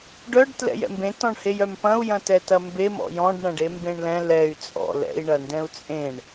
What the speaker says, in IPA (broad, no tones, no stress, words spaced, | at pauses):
ɖœɖ tlɛ̰jɛ̰mbẽ tɔ̃ɳhejœmpɐ̃u̯ jɐ̃tɛtɐmbe mɔ̰jɔ̃ɖ ɳɐ̃ɖembẽɳlɛ̃ lɛy̯ t͡sʼɔ̰ lɛ̰i̯ ɳɐndɛ̃u̯t͡sʼẽɳ